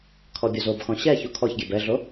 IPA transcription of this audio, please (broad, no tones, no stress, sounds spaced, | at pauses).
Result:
kʰ ɔ bʲ o z o b x ɔ̃ ɕ ɛ ç u kʰ ɔ ç ɡʲ e b ɛ ɮ o